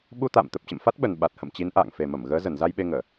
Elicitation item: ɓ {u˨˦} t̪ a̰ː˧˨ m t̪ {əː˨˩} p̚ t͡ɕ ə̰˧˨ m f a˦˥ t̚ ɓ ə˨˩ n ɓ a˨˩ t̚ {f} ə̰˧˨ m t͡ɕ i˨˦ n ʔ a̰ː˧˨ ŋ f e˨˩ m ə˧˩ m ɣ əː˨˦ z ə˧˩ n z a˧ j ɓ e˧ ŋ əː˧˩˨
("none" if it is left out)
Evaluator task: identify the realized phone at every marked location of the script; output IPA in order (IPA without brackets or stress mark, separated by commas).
u˧, ə˨˩, h